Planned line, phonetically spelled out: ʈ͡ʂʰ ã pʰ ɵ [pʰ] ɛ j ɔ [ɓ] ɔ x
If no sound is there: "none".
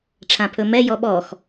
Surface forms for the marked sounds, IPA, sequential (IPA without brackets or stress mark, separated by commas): m, ɓ